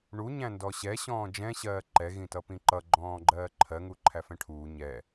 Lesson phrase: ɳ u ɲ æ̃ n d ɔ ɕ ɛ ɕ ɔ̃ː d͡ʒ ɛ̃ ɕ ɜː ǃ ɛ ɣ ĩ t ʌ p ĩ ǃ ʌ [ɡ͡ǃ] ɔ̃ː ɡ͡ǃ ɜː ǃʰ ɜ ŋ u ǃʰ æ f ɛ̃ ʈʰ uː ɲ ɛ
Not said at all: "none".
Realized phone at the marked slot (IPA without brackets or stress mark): ɡ͡ǃ